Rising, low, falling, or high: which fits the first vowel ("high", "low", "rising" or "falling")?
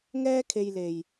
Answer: high